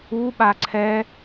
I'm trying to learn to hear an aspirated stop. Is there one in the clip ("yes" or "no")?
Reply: yes